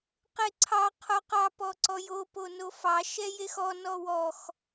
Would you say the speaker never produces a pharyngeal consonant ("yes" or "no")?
yes